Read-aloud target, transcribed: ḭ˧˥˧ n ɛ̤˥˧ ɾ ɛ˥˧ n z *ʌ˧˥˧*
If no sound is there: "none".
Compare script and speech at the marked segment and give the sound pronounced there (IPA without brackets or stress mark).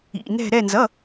ʌ˧˥˧